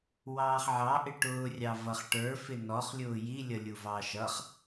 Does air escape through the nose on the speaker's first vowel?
no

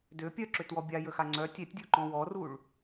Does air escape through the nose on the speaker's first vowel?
no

